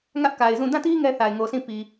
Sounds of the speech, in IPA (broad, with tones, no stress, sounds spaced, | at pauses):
ŋ ä˦ ʔ k a˨ ɪ̯ z ũ˦˨ d ã˦˨ t i˦ ŋ ɛ˦ θ a˨ ɪ̯ ŋ o˨ s ĩ˦˨ p i˨